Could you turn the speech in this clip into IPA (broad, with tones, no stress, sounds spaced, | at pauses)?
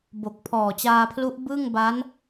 b o˨˩ k̚ pʰ ɔː˨˩ t͡ɕ aː˧ pʰ l u˦˥ ʔ b ɯ˥˩ ŋ b a˦˥ n